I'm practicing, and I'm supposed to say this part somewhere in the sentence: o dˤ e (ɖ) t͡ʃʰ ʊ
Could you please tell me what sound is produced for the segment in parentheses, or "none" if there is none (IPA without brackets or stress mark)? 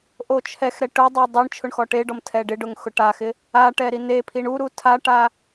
ɳ